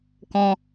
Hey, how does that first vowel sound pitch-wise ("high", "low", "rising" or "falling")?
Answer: high